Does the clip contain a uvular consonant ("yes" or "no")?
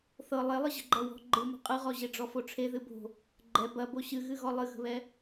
yes